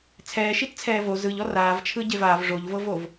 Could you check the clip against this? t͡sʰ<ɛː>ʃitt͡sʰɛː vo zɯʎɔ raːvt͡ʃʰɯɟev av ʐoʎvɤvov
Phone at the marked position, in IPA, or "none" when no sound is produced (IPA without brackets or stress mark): ɛː